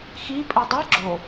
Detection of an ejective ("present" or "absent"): present